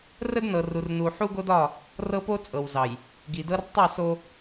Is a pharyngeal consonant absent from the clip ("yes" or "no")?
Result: no